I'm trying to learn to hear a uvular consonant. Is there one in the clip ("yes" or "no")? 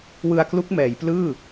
no